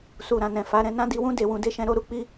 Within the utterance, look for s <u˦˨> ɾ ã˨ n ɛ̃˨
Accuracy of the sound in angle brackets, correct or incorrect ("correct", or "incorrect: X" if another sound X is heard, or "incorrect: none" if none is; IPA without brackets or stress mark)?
incorrect: u˨